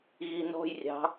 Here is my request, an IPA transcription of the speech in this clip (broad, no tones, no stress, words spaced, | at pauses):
ɣinɔ̤jrʲɑ̤